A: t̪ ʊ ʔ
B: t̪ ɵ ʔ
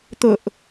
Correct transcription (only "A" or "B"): A